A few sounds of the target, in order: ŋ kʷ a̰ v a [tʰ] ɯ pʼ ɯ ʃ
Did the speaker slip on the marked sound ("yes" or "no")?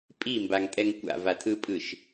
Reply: no